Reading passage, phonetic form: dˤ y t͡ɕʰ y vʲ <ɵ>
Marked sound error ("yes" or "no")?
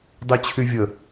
yes